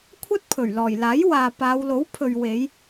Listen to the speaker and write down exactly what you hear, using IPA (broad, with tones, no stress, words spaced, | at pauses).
kʷʰɐ˥t̚ pʰɵ˨˩ɥlɔː˨˩jlaː˨˥jwaː˨ paː˨˧wlo˨˥w pʰɵ˨ɥwe˨˧j